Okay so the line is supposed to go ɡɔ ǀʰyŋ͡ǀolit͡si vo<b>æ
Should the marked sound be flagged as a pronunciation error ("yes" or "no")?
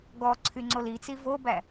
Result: no